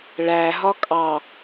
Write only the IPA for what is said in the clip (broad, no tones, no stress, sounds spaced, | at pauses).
ɭ æ ɦ ɒ kʼ ɑ